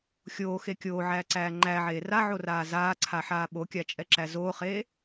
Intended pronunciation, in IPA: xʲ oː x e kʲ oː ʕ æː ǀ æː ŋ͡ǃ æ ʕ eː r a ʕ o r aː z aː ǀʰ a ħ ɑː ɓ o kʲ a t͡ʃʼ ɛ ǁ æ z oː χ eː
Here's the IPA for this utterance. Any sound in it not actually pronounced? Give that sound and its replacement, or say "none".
ɑː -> aː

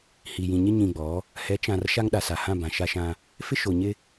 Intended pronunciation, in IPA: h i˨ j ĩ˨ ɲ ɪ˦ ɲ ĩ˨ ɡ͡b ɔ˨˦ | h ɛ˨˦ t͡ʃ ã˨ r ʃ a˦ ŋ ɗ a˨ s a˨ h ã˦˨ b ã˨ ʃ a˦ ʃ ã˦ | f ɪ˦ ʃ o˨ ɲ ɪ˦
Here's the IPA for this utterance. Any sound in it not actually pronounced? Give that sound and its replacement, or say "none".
none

